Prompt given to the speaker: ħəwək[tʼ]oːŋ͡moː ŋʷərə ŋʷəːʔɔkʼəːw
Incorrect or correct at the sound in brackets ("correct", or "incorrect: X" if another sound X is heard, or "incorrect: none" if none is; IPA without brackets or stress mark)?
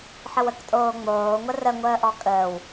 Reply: correct